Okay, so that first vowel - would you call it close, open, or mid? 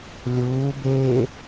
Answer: close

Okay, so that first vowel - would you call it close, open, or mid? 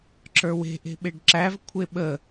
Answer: mid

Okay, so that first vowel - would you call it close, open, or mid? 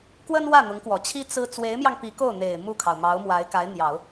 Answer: mid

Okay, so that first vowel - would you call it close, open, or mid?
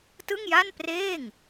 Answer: close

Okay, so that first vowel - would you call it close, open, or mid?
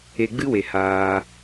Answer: mid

